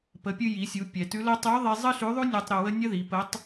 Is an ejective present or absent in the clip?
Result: absent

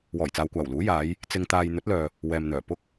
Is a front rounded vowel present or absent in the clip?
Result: present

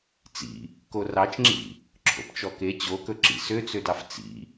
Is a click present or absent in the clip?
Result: present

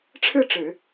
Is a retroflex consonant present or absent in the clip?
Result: present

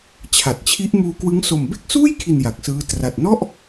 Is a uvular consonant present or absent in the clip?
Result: absent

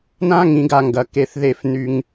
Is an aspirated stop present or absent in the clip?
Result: absent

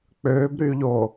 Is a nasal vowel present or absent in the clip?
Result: absent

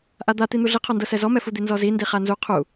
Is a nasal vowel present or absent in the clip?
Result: absent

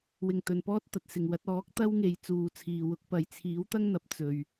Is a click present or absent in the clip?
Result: absent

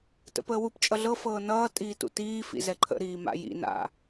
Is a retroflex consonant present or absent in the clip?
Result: absent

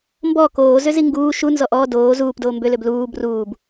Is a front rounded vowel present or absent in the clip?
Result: present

